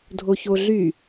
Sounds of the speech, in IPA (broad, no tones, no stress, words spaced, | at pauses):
dʱoçoɮy